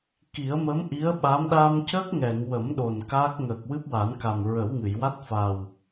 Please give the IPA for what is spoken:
k i˨˩˦ ə̯ m ə˧˥ m ʔ i˧˥ ə̯ ɓ a˧˥ m ɗ a˧ m c ə˦˥ k̚ ŋ ɛ˨˩˨ ŋ w ə˨˩˦ m ɗ o˨˩ n k aː˦˥ k̚ ŋ əː˨˩ k̚ w ɨ˦˥ p̚ w a˨˩˦ n k a˨˩ m ɹ ə˨˩˦ w ŋ ɨ˨˩˨ j w a˦˥ t̚ f a˨˩ w

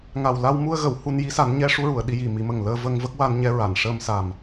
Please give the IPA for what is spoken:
ŋ a˨˩ w l a˧ w m u˧ ə̯ ɣ ə˨˩˨ w h u˧ n j i˧˥ s a˨˩˦ n ɲ ɛ˧˥ ʂ u˧˥ ɹ u˨˩˨ ə̯ ɗ i˧ j i˨˩ m i˨˩˦ m ə˨˩ ŋ l əː˧ v ə˧ ŋ v ə˦˥ k̚ w a˧ n ɲ ɛ˧ ɹ a˨˩˨ n ʂ əː˧ m s a˨˩ m

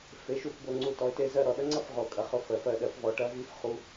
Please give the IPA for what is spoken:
f e˨˦ ʃ u˦˨ f b o˦˨ ŋ͡ǀ u˦˨ t ɔ˨˦ ɪ̯ t e˦˨ z ɜ˦˨ ɾ ɔ˨˩˦ ɗ ɐ˦˥ ŋ͡ǀ ɐ˦˥ f ʁ o˨˩˦ kʼ ɐ˨˦ χ ʊ˦˨ f ɜ˨˦ f ɜ˦˨ ɗ ɜ˨˦ f v ɔ˨˦ ʈ ɐ˦˥ v i˦˥ f χ u˦˥

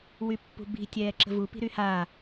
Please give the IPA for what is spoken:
w y pː ṳ b i̤ tʲ ɛː ǁ ə̤ v u p i̤ ɾ y h a

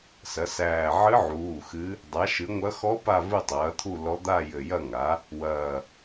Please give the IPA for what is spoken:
s ɐ˩˥ s æː˧˩ ʕ ɨ˧˥ ʕ uː˩˧˩ x ɨ˧˥ | dˤ a˩˥ ʃ ɨ˩˥ ŋʷ ɐ˧˥ x ɔ˧˥ p a˥˨ v ɨ˥˨ tˤ ɐː˩˥ t̪ʰ u˥˨ l ɔ˧˥ d̪ a˥˨ j ɘ˧˩ j ɐ˥˨ ŋ a˩˥ | w ɐː˧˩

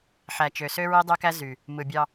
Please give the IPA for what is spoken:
ħ æ˨ t͡ʃ ø˨ s ø˦ ɹ i˦ dˤ ø˦ k æ˦ z y˨ | m ɯ˨ bʲ ɑ˦

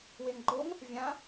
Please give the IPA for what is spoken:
w e ŋ ɡ͡ǃ o ŋ | vʲ ã

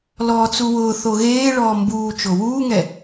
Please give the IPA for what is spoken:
l ɔː t͡s u w ʊː θ o ɣ eː ɭ ɔː m b uː t͡ʃ o w uː ŋ ɛ

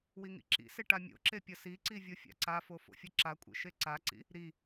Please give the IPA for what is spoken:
w i ŋ ḭ ǁ ḭ s e ʈ a mʲ o̰ ǁ e pʲ ʌ s i ǀ i vʲ o fʲ a̰ ǀ a f o f o̰ fʲ ʌ ǁ a kʷʼ ḛ ʃ e ǀ a ǀ ḭ | ɾ i

